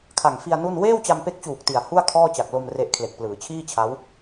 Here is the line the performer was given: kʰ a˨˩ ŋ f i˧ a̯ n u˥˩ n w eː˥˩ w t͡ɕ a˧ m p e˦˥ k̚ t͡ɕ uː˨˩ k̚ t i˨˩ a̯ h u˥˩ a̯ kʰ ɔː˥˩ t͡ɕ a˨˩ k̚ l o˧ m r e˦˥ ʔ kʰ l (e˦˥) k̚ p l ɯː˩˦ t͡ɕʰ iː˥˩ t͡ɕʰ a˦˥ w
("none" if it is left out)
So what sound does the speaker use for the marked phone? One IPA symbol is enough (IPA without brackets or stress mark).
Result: e˨˩